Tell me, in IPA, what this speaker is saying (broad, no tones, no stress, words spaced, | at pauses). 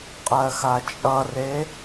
qʼɜxat͡ʃʼʌre